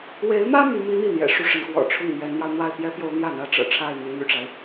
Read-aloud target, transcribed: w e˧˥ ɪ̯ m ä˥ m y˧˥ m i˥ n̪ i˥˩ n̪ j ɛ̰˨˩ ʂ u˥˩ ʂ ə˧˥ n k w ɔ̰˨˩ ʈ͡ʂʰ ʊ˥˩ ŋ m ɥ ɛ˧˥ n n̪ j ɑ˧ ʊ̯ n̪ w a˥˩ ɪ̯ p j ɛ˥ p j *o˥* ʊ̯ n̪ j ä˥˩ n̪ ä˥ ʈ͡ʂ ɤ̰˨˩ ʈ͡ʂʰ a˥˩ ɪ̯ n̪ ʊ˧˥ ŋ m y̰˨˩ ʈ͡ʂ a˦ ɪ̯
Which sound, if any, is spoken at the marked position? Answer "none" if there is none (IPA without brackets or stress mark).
o˧˥